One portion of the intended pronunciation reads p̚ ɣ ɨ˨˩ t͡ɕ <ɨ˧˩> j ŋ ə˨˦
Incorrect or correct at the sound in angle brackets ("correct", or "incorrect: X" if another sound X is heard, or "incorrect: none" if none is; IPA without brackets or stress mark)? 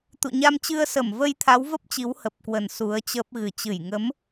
correct